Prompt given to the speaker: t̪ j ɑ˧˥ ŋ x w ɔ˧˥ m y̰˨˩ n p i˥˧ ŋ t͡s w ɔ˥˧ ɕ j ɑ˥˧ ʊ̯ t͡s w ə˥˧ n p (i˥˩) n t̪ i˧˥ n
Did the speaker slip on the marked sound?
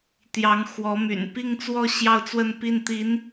no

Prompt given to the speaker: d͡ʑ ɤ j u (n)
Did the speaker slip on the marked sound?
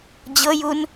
no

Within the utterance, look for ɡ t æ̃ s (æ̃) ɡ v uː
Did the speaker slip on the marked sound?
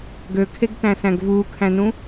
no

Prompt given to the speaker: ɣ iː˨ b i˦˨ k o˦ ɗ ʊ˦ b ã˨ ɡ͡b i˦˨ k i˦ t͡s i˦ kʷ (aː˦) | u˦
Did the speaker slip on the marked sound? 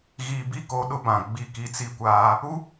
no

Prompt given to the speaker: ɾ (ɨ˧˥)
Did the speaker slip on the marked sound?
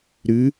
no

